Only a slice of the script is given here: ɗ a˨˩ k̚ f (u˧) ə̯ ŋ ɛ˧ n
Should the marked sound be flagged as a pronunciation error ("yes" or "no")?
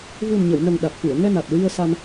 yes